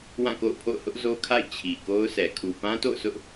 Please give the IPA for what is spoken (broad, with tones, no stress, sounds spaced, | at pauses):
w ã˦˨ k o̰˦˨ ʊ̯ pʰ o̰˦˨ ʊ̯ h ʊ˦ ʔ z o˦ kʰ a̰˦˨ ɪ̯ t͡ɕʰ i˨ k o˦ ʊ̯ s ɛ˨ kʰ u˨ p ã˦ t o̰˦˨ ʊ̯ s ʊ˦ ʔ